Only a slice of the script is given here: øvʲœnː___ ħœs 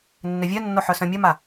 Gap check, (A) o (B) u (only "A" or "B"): A